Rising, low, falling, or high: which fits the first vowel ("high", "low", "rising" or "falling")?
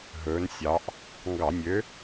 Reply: rising